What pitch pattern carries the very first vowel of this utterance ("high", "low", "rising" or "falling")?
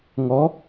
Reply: rising